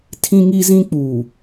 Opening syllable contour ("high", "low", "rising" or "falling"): high